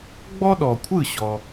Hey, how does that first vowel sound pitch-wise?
high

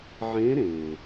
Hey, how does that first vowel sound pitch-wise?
rising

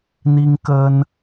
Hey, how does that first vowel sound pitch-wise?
high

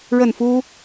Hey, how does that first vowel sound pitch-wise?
falling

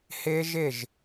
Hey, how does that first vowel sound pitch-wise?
high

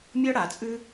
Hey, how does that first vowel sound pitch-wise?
high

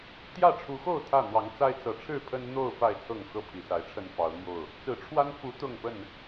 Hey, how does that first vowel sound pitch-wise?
falling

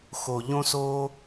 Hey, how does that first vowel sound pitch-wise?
low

